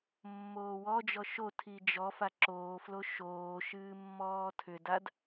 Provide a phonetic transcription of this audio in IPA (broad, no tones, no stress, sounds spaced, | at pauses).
mː oː w ɔ d͡ʒ ɔ ʃ o tʰ i d͡ʒ ɔ f a ǁ oː f l o ʃ oː ʃ ɨː mː ɔː tʰ ʏ d a d